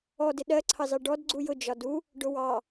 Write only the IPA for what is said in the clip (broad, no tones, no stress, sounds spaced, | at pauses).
ɔ d ɪ ɗ ɜ ǀʰ ɑ z ɑ ɖ ɔ d ɡ͡ǀ u j ʊ d͡ʒ ɒ d u | ɖ ʊ w ɑ